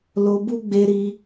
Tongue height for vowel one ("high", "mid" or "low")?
mid